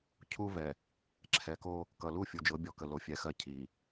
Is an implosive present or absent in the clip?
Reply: absent